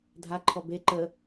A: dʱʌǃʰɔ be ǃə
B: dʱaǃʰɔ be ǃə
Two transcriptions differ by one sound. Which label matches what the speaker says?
B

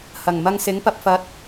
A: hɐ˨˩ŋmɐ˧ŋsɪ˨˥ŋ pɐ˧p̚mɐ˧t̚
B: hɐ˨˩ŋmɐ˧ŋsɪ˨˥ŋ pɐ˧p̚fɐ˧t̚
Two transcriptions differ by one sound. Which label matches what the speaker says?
B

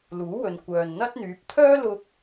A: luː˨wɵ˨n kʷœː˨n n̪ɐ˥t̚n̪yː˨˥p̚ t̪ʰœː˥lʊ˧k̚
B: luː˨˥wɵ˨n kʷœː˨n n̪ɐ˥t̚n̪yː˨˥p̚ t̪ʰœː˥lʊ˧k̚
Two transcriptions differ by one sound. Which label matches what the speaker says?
B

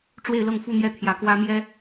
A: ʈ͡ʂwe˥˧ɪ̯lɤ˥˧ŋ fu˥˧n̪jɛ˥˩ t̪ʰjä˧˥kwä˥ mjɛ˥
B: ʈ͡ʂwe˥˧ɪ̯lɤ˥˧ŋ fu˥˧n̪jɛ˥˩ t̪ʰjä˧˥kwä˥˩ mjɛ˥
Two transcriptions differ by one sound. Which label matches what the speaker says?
A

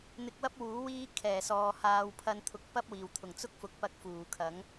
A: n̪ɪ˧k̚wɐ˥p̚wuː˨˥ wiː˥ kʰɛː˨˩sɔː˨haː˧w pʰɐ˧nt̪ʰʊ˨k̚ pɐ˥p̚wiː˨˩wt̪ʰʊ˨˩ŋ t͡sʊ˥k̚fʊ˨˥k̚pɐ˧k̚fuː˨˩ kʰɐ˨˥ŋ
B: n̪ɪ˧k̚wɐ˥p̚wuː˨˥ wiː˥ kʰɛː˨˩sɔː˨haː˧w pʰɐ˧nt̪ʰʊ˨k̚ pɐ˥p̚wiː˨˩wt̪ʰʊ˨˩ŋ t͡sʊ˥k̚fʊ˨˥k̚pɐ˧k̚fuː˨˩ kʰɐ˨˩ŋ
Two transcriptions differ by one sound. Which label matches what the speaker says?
A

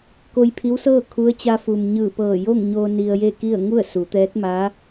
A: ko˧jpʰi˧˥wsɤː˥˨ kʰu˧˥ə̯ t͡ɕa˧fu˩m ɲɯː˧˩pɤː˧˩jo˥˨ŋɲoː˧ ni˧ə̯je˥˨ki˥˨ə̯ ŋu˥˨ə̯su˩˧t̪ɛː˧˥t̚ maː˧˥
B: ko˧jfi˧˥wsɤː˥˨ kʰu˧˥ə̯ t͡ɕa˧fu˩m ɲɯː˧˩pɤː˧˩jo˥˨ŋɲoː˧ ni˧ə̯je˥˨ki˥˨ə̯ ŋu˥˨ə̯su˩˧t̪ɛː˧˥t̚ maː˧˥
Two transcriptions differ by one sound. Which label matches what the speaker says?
A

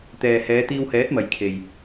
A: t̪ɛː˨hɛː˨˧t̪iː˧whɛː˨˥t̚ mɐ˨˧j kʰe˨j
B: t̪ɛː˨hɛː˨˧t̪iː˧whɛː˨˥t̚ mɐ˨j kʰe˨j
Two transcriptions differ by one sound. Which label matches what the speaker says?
A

